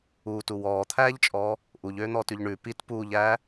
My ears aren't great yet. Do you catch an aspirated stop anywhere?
yes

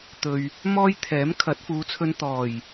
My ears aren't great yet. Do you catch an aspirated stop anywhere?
yes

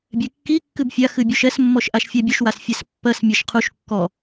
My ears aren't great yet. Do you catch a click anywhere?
no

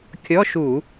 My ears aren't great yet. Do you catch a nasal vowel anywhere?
no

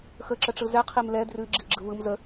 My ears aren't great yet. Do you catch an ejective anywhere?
no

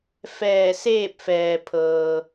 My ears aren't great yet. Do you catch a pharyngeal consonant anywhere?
no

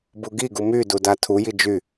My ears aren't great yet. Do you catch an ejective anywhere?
no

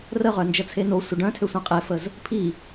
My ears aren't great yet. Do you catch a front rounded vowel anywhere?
yes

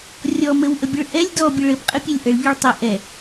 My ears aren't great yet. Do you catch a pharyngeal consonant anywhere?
no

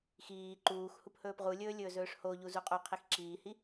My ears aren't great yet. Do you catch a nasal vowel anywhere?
no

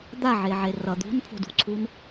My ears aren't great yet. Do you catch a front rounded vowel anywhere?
no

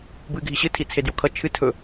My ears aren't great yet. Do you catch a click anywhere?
no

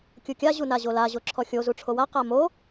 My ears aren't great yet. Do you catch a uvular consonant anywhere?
yes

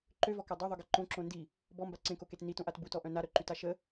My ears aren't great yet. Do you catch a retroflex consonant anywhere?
no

